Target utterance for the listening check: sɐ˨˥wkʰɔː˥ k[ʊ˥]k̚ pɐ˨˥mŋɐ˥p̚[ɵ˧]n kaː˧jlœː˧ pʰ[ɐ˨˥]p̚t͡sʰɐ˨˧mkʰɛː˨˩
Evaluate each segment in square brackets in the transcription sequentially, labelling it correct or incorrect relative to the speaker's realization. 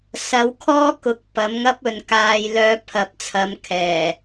incorrect, incorrect, correct

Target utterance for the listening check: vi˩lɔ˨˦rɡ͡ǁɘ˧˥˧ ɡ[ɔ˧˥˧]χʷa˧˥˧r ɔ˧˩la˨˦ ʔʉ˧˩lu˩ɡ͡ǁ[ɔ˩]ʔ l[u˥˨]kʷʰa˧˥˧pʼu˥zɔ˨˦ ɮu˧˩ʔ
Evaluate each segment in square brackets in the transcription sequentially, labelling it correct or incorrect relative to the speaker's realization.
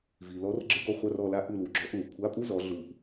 incorrect, incorrect, incorrect

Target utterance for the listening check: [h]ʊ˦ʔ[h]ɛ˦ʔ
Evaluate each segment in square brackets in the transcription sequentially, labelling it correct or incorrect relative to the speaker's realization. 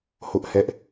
correct, correct

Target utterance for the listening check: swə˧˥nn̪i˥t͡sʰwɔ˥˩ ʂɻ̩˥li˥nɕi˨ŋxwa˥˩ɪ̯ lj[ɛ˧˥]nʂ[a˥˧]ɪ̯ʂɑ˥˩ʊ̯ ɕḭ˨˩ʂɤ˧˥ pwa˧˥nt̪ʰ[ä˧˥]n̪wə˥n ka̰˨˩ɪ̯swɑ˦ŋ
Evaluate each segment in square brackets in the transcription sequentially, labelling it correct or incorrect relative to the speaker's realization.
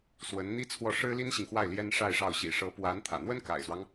incorrect, correct, incorrect

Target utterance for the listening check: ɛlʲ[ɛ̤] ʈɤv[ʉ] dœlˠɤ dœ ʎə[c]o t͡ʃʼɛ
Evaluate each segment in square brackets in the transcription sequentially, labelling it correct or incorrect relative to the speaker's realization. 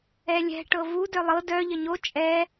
correct, incorrect, incorrect

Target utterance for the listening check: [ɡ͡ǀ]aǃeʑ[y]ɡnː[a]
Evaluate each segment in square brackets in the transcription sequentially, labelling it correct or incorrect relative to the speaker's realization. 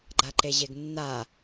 incorrect, incorrect, correct

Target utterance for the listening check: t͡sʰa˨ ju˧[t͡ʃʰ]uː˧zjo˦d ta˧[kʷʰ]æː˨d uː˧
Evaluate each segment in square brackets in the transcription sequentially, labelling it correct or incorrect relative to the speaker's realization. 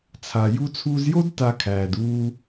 incorrect, incorrect

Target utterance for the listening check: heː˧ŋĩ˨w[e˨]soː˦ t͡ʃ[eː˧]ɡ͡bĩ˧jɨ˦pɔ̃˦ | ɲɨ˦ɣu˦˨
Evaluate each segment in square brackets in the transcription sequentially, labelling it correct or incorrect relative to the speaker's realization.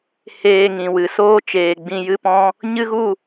incorrect, incorrect

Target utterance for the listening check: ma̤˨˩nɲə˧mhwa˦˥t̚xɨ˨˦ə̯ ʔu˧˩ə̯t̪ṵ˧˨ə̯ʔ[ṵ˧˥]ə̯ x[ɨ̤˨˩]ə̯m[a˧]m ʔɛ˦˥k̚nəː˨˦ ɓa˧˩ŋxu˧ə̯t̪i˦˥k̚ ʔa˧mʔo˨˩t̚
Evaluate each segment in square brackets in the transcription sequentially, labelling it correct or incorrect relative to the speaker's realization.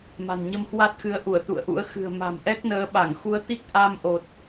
correct, correct, incorrect

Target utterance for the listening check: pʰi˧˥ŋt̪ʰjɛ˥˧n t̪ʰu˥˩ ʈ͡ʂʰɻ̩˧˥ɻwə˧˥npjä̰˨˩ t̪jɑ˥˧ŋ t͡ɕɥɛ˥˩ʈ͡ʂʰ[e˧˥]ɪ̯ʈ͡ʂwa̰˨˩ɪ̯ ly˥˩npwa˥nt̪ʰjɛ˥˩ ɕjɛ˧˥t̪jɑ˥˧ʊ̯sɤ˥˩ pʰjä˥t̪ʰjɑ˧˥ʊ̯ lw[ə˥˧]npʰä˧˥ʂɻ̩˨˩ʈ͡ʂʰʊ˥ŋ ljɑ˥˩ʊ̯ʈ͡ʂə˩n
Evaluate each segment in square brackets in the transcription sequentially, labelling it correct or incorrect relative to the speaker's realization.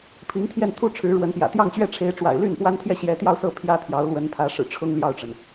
correct, incorrect

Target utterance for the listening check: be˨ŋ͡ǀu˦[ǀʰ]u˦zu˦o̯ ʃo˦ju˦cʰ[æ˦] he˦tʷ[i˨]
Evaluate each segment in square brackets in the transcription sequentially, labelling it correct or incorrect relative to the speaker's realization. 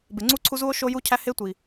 correct, correct, correct

